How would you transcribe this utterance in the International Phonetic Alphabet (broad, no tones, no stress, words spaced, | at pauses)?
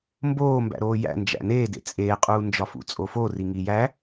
mboː mbæ̰ɾoːjæ̰ nd͡ʒæ̰neːdḛ t͡sʼeːqʼuːnd͡ʒɒfṵ t͡sʼoforiŋi jæ